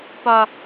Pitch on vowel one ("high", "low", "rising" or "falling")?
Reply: low